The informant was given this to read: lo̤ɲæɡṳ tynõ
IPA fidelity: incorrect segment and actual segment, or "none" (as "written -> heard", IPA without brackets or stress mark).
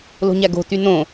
ṳ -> o̤